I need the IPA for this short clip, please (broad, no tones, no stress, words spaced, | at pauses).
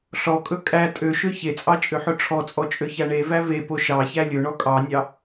ɬɔkʼɵ kʼæ tʼøʃø çet͡sʼɑt͡ʃʼøħɵ ʈ͡ʂʰɔt͡sʼɔt͡ʃʼøçæ ɳevæ vepo ʃɑçæ lʲɵɳɔ kʼɑnʲɑ